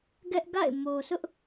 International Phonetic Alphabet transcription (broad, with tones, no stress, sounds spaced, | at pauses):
ɡ ɛ˦ ʔ ɡ a̰˦˨ ɪ̯ m o˨ s ʊ˦ ʔ